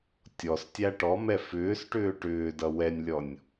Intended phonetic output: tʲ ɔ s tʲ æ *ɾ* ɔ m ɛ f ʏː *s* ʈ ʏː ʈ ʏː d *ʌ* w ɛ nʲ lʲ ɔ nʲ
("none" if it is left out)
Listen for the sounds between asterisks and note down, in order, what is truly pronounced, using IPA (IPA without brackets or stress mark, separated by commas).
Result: ʈ, s, ʌ